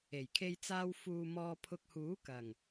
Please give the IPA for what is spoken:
e˨˩jkʰe˧jt͡saː˧w fuː˨ mɔː˨pʰʊ˨k̚ huː˨˥kɐ˨˩ŋ

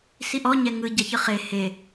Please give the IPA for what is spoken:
siʔɔ ɲɛŋɯ ɟaçɯχe he

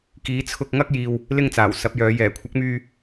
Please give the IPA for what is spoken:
kiː˨˥t͡sʰʊ˧k̚ŋɐ˥k̚ jiː˧w | lɪ˧ŋt͡saː˨˩w sɐ˨˥p̚jœː˨˧ jɛː˨˩kʷʰɐ˨˥k̚myː˧

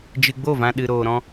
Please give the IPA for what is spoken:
d͡ʒɨ˧ɡ͡bo˦˨vã˧ ɗɨ˨ɾoː˨ɾɔ̃˧

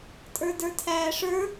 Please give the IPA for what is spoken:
tʼə˞də˞tʰæːʂə˞

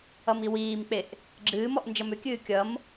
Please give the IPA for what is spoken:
ʌmiwiːmk͡peʔ | ɡ͡ǁɨːmɔʔ nd͡ʒʌmʏkʲɨː kʲʌm

